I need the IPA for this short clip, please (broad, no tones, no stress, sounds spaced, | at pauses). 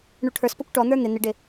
ɳ u ʈʰ ə˞ s p ʌ kʷ ʈ ɔ n̪ ə˞ n̪ ɪ n̪ ɪ ɖ ɪ